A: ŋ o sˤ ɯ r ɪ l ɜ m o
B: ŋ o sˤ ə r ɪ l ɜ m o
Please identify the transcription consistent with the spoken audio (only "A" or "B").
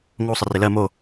B